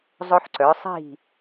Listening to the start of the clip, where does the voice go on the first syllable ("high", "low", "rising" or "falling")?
high